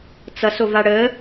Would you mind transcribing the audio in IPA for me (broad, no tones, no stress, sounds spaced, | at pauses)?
t͡s ʌ s o v a ɽ ə